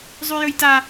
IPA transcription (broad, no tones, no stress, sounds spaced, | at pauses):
zˤ ʉ j ɵ j t a